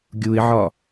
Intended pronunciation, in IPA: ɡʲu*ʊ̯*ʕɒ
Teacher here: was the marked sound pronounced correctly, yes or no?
no